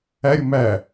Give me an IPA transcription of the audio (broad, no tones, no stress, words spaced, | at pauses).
æɾʲʊ mæ